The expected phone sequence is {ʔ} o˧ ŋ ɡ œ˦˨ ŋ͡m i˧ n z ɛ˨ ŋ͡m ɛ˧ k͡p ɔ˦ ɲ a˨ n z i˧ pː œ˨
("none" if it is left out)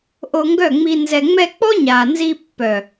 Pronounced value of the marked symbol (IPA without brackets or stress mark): ʔ